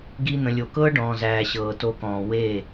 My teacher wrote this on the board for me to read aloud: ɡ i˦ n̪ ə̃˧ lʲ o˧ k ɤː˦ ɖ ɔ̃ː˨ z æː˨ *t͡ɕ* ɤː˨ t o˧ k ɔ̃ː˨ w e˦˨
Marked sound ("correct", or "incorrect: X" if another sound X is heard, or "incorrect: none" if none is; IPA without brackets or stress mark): incorrect: ɕ